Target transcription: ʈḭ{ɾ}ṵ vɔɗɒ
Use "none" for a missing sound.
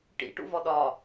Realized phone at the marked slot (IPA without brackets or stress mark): ʈ